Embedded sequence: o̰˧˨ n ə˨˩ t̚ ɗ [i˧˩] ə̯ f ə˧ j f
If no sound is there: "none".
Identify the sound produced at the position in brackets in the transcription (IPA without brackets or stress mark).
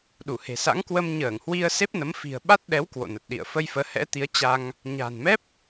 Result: ḭ˧˨